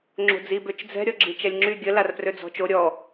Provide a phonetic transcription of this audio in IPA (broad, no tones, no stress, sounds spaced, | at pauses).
ŋ͡ǁ o̤ d͡z i b ø t͡ʃ d͡z ɛ̤ ɾʲ ɔ ɡ͡ǁ i t͡ʃ ɛ lʲ ŋ͡ǁ y ɡʲ ə l a r p r ø d͡z ɔ̤ t͡ʃ o ɾʲ ɔ